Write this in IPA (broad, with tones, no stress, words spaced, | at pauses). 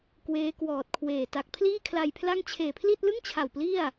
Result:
kweː˦˥kwɔː˨˩t̚kʰweː˨˩ ta˨˩k̚pʰliː˥˩kʰla˧jpʰla˥˩ŋ t͡ɕʰeː˨˩pʰli˥˩t̚lɯ˥˩ŋt͡ɕʰa˨˩w pli˥˩a̯